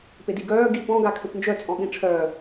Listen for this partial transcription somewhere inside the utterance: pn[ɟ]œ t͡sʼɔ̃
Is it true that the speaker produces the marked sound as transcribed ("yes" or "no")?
no